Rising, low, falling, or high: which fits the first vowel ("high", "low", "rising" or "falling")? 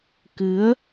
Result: rising